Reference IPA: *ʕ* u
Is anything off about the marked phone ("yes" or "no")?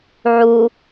no